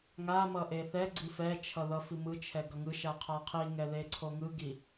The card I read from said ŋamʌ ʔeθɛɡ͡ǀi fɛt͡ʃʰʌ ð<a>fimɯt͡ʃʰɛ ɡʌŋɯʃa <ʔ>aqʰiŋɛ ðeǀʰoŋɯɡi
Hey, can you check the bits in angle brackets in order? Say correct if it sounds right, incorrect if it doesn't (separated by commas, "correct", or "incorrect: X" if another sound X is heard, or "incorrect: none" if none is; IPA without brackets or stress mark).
incorrect: ʌ, incorrect: qʰ